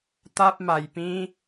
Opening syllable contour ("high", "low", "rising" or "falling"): high